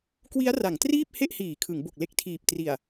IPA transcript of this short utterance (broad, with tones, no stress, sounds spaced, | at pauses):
k w i˦˥ a̯ r a˩˦ ŋ t r iː˥˩ p̚ h e˥˩ ʔ h iː˩˦ kʰ ɯ˩˦ ŋ b o˨˩ k̚ l e˦˥ k̚ tʰ iː˨˩ p̚ t r i˨˩ a̯